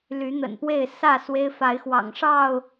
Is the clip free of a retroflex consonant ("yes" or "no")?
no